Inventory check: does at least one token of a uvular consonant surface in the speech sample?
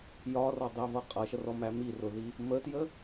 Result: yes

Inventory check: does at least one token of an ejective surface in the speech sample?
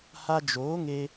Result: no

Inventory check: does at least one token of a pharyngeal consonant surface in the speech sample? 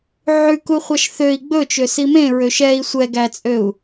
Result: yes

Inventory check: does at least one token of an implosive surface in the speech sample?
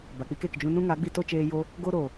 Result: no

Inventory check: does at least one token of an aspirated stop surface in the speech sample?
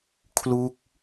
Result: yes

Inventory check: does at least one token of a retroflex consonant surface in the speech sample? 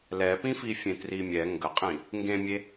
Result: no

